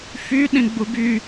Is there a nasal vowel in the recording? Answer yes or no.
yes